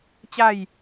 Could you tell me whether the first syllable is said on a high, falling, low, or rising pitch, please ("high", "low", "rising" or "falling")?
falling